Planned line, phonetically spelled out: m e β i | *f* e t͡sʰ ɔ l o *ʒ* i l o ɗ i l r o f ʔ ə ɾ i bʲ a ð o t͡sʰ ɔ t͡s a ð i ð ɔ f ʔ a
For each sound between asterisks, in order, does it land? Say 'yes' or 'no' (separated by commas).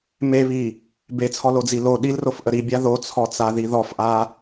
no, no